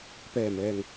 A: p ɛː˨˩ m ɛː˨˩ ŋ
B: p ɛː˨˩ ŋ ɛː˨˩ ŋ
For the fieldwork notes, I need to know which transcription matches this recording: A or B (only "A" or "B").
A